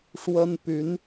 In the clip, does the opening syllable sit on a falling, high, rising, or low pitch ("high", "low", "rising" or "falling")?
high